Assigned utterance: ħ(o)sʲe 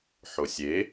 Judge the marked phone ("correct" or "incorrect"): correct